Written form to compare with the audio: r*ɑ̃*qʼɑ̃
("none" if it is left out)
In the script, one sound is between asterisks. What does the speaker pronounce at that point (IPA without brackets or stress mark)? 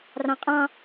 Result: ɑ̃